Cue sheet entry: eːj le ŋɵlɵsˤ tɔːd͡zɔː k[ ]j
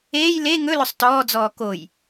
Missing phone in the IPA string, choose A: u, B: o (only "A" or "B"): B